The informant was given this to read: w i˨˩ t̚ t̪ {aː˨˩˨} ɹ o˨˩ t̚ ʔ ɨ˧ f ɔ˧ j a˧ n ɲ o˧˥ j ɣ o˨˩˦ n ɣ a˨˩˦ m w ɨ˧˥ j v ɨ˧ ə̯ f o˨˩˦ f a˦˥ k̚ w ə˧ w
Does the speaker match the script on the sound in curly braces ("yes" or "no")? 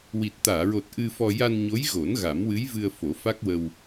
yes